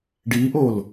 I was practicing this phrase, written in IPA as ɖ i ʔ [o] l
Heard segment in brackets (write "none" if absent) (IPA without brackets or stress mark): o